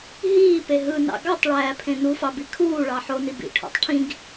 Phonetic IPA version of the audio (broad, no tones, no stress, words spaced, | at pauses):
ɦiːpe ɦɯnɑ̰ ɡɑtˤɭæːpʰẽ nufɑbi kʰuːɭɑ ħoni bḭʈʰo̰tˤ ʈʰĩɡ